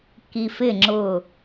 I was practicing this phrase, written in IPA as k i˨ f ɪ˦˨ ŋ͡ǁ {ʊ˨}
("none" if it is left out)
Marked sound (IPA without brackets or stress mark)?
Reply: ʊ˦˨